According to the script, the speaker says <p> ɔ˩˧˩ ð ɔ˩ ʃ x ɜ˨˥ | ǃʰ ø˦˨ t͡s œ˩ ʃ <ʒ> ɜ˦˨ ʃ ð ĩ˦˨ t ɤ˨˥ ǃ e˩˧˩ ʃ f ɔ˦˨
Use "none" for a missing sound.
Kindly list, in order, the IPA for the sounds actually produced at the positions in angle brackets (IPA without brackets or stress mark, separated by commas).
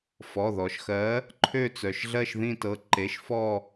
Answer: f, ɮ